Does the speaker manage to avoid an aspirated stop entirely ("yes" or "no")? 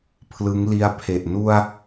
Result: no